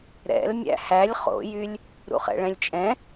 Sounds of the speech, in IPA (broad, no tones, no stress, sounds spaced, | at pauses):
ɾ ɛ̰ l mʲ æ̰ h æ lʲ χ o̰ j y lʲ | ɾ ṵ χ ɛ̰ ɭ ɛ̃ lʲ t͡ʃʼ ɛ̃